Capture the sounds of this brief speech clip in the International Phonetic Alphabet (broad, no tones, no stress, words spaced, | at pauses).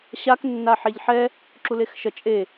ɕak nːaħeʎħɛ | ǁulexʃʌ t͡ʃʼe